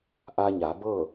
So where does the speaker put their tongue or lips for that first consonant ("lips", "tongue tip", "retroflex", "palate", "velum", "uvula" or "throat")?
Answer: throat